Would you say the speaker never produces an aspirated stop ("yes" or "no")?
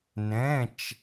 yes